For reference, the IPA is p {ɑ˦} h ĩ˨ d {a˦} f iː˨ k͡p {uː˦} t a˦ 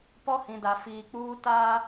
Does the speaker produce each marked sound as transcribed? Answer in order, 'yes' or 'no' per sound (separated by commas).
no, no, yes